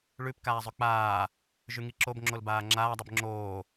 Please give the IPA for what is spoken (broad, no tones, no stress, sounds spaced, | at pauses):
ɭ ʉ p k aː zˤ ʉ k͡p aː | ʒ y ŋ i ǁ o b ŋ͡ǁ o l b aː ŋ͡ǁ aː dˤ i b ŋ͡ǁ oː